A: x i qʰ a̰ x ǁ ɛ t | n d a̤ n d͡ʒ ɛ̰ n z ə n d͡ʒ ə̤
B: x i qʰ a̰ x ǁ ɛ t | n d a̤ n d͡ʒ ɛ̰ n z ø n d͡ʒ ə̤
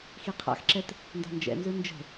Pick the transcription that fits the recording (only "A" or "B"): B